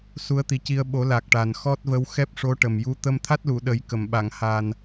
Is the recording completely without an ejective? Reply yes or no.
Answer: yes